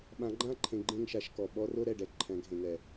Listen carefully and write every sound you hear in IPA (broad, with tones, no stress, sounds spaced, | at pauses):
ɓ ã˨˦ ɡ͡ǃ ã˦ ǃʰ ẽ˨ ɡ͡ǃ ẽ˦˨ ŋ ʃ a˦ ʃ k ɔ˨ ɓ ɔ˦ r o˦ ɾ ɛ˨ ɖ ɛ˨ ǃʰ ɛ̃˨˦ ɡʱ ẽ˨ ŋ ɛ˨